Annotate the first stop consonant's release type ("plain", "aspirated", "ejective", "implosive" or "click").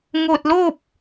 plain